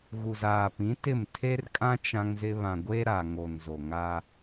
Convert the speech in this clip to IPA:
ɣ u˨ z aː˨ p ĩ˨˦ t ɪ˦˨ m tʰ e˦ r kʼ ã˦ t͡ʃ ã˦ ŋ z ɪ˦ β ã˨ ɡʷ e˦ ɾ a˨ ŋ o˨ n z o˨ ŋ aː˦

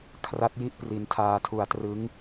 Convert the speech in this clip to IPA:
kʰ r a˦˥ t̚ j i˦˥ ʔ p r i˧ n tʰ aː˧ tʰ u˧ a̯ t r ɯ˦˥ ŋ

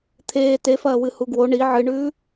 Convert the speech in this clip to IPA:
t̪ʰ eː t e f ɐː w ɨ h u ɡ w o ɳ i ʕ ɨ ɳ ʉː

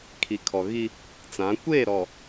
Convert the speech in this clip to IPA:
kʰ i˨ kʰ ɔ˨ ɣ i˦ | t͡s ã˨˦ kʷ eː˦˨ ɾ ɔ˨

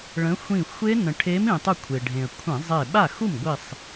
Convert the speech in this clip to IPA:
ɭ ə̃˨˦ xʷ ĩ˧˩ xʷ e˦˥ n ə̃˩ ʈʰ e˨˦ m ĩ˩ tˤ u˧˩ kʷʰ e˩ ɖʱ ẽ˩ ə̯ kʷʰ ẽ˧˩˧ zˤ e˧˩ ɓ a˥˩ x u˥˩ m ɡʷ i˧˩ sˤ

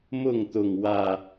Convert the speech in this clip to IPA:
m ʊ˥˨ ŋ t̪ ʊ˨˩ ŋ w ä˥˨

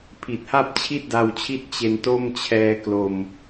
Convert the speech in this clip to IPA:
pʰ i˨˩ t̚ h a˥˩ p̚ t͡ɕʰ i˥˩ t̚ d a˧ w t͡ɕʰ i˦˥ t̚ t͡ɕ e˧ n t o˥˩ m t͡ɕʰ ɛː˧ k l o˧ m

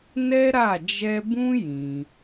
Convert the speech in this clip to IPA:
n ɛ˦ ɾ a˦˨ d͡ʒ ɛ˧ b ũ˦ j ĩ˧

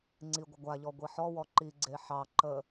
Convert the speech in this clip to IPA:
ŋ͡ǀ i ɡʷ ə ɡʷ a ʎ ɔ ɡʷ i ħ ɔ w ɔ ǃ i ɡ͡ǀ e ħ ɑ ǃ ə

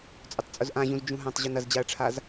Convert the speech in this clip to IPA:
t͡sʼ ʊ tˤ t͡sʼ ʊ z ʔ ã ʑ ũ z d͡ʒ ũ ɦ ã tˤ ʑ u n ɐ z d͡ʑ a ɐ̯ ʈ͡ʂʰ a z

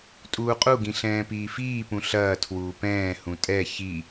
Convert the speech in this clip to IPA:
tʼ uː qʼ u ɡ ĩ ɬ ɛ̃ː p iː f iː p ũ ɬ ɐː tʰ w uː p ɛ̃ː h ũ tʼ ɛ ç i

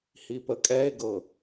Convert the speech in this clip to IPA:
h i p ə kʼ ɛ e̯ ɡ ɤ

